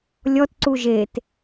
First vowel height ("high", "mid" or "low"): mid